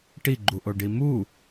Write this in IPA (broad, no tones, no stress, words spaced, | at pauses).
ʈiɡ͡ǃuʔoɖi mu